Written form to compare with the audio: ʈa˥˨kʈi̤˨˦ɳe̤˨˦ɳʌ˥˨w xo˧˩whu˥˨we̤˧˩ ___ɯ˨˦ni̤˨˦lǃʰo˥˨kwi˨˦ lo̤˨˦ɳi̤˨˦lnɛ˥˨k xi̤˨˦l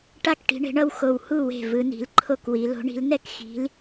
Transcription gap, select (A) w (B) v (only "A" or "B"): B